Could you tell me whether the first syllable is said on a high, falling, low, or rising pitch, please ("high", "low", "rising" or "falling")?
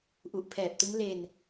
low